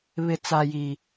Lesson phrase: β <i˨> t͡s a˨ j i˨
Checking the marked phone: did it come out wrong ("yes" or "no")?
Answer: yes